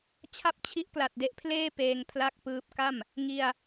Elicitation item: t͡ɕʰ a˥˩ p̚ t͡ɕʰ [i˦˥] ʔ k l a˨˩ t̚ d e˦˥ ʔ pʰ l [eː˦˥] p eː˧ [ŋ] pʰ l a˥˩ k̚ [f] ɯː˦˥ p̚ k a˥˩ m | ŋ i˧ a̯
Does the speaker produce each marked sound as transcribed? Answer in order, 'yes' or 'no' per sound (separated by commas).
yes, no, yes, no